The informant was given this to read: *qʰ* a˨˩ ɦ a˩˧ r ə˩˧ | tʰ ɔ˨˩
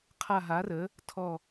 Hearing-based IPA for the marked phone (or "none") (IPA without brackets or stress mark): qʰ